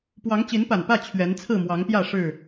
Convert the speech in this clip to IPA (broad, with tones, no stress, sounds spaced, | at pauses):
p w ɑ˨˦ ŋ t͡ɕ i˨˦ n p a˨˩ n p ä˥˨ t͡ɕʰ ɥ ɛ˨˦ n t͡sʰ ɹ̩˥˨ m w ɑ˨˦ ŋ p j ä˥˨ ʂ ɻ̩˥˨